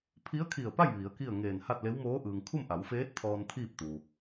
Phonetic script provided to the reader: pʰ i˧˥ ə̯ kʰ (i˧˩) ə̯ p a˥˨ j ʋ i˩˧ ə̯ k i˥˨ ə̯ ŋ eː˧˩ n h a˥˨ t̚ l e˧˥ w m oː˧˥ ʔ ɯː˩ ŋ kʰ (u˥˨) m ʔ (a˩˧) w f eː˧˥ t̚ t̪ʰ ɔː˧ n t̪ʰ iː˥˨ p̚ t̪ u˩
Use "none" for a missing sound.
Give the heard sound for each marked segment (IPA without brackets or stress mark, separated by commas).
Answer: i˧˩, u˥˨, a˩˧